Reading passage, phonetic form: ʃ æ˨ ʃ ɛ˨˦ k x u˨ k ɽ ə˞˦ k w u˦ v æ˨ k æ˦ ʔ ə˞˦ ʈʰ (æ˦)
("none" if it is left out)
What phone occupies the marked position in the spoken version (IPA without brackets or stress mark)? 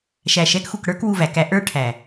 æ˨